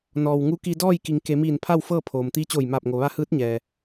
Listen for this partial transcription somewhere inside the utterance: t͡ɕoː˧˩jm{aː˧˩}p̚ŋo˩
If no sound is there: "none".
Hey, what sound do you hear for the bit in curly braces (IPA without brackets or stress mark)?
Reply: aː˧˩